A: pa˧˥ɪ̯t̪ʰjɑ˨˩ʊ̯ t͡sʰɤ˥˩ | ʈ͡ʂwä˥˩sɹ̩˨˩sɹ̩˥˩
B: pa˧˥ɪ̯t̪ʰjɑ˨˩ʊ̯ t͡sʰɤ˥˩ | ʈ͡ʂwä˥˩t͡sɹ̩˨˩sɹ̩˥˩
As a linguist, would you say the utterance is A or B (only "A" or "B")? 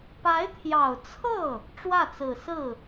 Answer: B